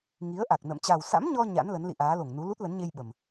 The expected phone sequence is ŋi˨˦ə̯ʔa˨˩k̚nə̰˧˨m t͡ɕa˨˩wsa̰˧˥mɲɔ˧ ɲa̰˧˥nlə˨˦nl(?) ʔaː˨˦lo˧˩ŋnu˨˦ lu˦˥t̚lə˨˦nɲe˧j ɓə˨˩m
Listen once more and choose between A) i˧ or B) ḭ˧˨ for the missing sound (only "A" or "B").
B